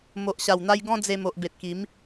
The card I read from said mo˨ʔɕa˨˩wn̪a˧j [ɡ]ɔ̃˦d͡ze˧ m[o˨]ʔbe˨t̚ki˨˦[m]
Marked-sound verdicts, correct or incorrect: correct, correct, correct

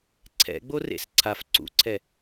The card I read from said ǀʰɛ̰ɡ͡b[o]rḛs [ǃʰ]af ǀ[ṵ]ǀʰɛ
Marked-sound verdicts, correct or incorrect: correct, incorrect: ǀʰ, correct

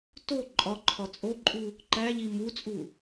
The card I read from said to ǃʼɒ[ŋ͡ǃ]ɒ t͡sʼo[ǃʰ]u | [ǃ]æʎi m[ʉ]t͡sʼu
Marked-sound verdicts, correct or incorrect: incorrect: ǃʰ, incorrect: ǃʼ, correct, incorrect: u

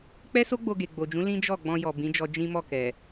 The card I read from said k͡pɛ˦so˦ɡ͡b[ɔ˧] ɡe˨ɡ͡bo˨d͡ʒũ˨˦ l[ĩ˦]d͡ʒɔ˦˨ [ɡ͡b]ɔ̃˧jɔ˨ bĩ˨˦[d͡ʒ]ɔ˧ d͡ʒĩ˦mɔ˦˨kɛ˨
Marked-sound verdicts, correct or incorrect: incorrect: o˧, correct, correct, correct

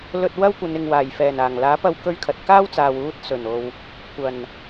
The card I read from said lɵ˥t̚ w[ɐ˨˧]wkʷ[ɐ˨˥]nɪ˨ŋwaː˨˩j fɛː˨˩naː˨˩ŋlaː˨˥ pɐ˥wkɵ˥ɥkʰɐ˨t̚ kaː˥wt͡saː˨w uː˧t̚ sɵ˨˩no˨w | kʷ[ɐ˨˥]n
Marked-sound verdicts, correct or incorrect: incorrect: ɐ˥, incorrect: ɐ˨˧, incorrect: ɐ˨˩

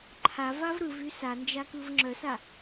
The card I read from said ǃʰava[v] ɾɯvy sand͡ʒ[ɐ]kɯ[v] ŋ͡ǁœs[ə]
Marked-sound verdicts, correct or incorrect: correct, incorrect: a, correct, incorrect: a

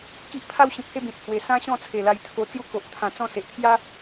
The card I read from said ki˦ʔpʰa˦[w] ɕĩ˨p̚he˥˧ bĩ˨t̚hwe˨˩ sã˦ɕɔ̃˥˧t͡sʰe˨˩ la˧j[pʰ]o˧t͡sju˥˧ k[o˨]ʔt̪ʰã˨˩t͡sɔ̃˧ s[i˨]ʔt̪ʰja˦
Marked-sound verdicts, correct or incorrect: correct, incorrect: t̪ʰ, correct, incorrect: e˨

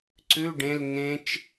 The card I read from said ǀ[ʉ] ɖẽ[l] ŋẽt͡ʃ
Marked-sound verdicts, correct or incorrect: correct, correct

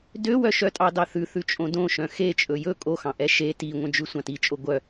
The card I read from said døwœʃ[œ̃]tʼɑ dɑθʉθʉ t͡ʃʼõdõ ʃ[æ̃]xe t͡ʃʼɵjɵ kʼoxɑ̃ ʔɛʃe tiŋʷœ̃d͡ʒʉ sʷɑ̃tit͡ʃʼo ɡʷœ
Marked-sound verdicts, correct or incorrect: incorrect: œ, incorrect: œ̃

